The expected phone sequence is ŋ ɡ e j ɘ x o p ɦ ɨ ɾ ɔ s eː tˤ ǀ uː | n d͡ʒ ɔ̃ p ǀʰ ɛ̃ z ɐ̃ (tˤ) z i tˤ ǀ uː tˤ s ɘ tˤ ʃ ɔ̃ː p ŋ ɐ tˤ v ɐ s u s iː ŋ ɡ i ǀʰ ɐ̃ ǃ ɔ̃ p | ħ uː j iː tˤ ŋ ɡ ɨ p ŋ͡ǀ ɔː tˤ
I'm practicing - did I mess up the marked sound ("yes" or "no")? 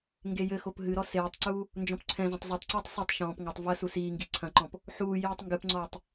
no